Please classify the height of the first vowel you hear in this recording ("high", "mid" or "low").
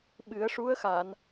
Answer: high